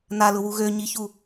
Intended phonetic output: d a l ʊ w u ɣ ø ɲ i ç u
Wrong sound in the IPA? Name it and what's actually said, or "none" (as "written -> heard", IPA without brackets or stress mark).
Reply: d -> n